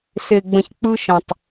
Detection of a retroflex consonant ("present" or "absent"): absent